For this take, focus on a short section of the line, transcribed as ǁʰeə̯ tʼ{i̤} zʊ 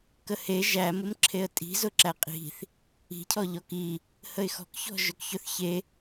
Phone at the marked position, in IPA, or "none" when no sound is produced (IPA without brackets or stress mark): i̤